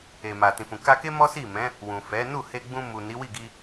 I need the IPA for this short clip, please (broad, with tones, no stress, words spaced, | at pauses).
e˨ma˨tĩ˨fũ˨ ka˧ke˦ mɔ˦si˦˨mɛ̃˨˦ | wũ˨fɛ˨˦ nu˦˨he˧ɡ͡bũ˧mu˨ ni˨˦wi˦˨ɡi˧